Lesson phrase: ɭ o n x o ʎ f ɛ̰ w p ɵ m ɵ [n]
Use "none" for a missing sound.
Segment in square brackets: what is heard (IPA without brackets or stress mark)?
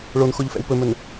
n